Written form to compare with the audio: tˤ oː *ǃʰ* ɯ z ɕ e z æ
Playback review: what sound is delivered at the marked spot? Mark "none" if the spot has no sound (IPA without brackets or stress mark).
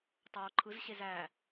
ǃʰ